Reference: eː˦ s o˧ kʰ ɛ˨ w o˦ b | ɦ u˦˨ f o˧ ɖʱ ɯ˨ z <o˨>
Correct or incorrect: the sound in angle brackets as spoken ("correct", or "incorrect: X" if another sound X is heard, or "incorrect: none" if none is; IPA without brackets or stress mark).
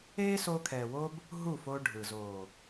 correct